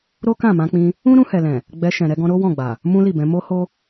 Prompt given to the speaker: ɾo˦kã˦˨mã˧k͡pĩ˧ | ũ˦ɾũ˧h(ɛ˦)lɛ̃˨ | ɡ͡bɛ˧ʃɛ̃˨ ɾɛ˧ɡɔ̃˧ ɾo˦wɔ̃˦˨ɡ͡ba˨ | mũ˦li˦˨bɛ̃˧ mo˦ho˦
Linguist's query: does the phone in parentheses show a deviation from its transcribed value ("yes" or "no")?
yes